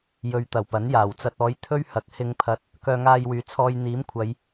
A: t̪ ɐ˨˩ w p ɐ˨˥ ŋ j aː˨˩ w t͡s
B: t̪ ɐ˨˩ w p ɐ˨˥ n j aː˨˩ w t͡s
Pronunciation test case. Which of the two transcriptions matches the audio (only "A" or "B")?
B